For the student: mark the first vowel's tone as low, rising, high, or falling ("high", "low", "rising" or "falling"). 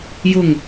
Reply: low